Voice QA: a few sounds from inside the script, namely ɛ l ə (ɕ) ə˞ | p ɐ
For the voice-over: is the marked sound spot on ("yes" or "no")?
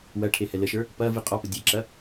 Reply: no